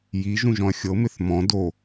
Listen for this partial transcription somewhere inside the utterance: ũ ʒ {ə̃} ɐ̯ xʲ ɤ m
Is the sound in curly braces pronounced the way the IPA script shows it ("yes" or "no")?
no